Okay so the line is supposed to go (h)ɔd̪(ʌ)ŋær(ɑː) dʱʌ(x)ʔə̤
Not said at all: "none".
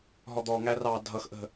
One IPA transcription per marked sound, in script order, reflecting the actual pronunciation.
ɦ, ɔ, ɑː, x

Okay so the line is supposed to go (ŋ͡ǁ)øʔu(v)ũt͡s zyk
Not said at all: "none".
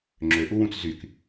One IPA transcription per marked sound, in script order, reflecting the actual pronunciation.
ŋ͡ǁ, w

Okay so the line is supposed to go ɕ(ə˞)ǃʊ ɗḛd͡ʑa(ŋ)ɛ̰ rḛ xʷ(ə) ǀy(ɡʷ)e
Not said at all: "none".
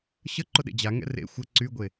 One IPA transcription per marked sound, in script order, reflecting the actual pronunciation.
ə, ŋ, ə, ɡʷ

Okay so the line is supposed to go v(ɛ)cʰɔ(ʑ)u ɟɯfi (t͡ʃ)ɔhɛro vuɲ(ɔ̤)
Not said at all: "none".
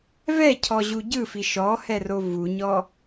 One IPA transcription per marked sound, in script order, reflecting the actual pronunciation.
ɛ, ʑ, ʃ, ɔ

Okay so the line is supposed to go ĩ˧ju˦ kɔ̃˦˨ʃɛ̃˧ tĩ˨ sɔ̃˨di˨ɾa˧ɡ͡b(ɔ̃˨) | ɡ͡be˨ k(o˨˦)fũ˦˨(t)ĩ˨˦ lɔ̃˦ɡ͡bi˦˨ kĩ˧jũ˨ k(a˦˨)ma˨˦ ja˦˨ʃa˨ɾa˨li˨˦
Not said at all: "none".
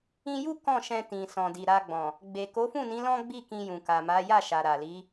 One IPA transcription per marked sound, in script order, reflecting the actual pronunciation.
ɔ̃˨, o˨˦, n, a˨

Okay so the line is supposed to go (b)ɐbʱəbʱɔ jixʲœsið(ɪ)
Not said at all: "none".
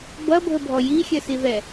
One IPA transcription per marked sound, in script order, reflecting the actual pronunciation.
b, ɛ

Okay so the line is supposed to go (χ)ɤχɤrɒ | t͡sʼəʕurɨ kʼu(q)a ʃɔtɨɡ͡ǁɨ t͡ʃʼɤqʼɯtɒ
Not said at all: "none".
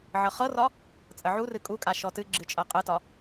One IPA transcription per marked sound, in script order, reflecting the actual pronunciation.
ʕ, kʼ

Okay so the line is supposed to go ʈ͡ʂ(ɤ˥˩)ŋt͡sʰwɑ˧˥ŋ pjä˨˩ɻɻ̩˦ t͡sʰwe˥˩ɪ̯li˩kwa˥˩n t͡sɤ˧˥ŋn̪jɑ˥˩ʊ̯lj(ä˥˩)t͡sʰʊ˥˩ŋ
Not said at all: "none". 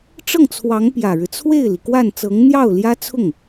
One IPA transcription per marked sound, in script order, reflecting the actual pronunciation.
ɤ˥˩, ä˥

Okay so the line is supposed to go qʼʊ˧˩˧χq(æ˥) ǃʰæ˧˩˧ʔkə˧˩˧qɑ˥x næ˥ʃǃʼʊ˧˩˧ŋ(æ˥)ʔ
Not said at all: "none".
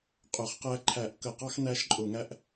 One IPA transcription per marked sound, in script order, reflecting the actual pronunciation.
æ˥, æ˥

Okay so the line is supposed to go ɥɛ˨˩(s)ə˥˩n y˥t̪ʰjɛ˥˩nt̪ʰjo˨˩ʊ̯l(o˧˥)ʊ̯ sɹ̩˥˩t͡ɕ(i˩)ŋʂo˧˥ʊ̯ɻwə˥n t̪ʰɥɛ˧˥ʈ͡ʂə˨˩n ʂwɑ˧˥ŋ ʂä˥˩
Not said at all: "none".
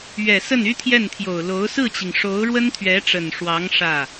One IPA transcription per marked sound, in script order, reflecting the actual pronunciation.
s, o˧˥, i˩

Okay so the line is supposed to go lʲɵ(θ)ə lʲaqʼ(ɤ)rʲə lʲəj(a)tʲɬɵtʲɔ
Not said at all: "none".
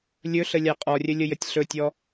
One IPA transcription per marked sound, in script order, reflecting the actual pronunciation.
ɬ, ɔ, ə

